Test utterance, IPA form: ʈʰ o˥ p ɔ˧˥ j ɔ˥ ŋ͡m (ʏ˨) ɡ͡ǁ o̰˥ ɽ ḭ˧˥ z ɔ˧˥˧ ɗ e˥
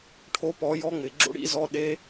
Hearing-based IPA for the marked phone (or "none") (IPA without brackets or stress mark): ɪ˨